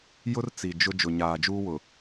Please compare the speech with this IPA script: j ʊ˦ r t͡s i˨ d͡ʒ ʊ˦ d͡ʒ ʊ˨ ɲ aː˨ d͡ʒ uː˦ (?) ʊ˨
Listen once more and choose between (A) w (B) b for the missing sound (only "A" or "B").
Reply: A